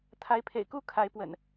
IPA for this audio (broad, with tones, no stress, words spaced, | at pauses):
t̪ʰa˨˦ɪ̯pʰḛ˨˩ɪ̯ku˥˨ kʰa˨˦ɪ̯pwə̰˨˩n